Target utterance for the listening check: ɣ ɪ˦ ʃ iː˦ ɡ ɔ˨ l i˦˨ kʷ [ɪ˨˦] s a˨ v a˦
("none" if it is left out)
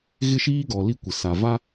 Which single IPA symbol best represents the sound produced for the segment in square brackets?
ɪ˨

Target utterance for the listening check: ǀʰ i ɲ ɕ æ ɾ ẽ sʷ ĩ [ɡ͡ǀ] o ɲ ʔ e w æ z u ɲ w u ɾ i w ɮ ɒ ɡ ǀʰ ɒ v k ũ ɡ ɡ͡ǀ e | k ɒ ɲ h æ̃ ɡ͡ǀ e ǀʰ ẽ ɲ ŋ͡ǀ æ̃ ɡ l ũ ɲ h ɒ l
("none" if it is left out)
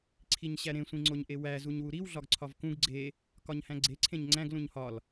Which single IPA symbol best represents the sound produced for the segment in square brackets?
ŋ͡ǀ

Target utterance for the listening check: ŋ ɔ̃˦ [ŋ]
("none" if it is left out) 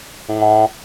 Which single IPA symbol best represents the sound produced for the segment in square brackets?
none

